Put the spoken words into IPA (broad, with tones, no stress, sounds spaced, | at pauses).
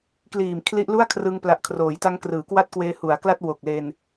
k l iː˨˩ m kʰ l i˦˥ ʔ l u˥˩ a̯ kʰ r ɯ˧ ŋ p l a˨˩ ʔ kʰ r oː˩˦ j t a˦˥ ŋ k r ɯː˩˦ k w a˥˩ t̚ k w eː˧ h u˩˦ a̯ k l a˥˩ t̚ w o˨˩ k̚ l e˧ n